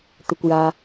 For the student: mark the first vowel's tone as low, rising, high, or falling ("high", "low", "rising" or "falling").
low